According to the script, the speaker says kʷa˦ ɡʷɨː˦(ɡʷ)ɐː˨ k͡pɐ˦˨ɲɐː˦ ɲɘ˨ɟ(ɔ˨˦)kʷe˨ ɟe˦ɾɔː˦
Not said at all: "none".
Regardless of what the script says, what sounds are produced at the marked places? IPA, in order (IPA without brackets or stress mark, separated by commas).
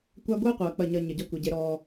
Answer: qʷ, ɔ˦